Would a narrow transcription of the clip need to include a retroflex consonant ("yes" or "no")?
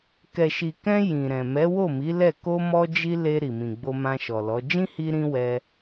no